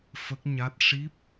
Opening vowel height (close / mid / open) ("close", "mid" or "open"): mid